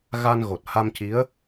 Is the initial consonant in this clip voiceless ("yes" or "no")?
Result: no